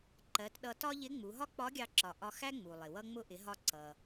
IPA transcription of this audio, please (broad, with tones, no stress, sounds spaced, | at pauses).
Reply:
ǃ ɜ˩˧ t ɗ ʌ˧ t ɒ˥ ʎ ɪ˧˥ ŋ͡m u˩˧ ɦ ɒ˥ k͡p ɒ˧˥ ɡʲ ɑ˧ ǁ ɒ˩ ʔ ɒ˧ x æ˥ ŋ͡m u˩ lˠ ɪ˩ w ʌ˧ ŋ͡m ʊ˧ ʔ ɪ˩˧ ɦ ɒ˧ ǀ ʌ˩